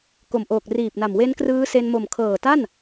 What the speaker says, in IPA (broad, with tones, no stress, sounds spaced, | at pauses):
k o˨˩ m ʔ oː˨˩ k̚ r iː˨˩ p̚ n a˨˩ m w e˦˥ n k r ɯː˦˥ s e˧ n m o˨˩ m kʰ ɤː˨˩ t a˥˩ n